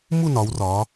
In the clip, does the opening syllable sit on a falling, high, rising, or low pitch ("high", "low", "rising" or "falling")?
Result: falling